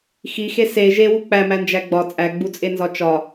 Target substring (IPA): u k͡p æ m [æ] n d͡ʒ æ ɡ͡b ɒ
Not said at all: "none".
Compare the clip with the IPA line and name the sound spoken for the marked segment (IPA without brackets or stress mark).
æ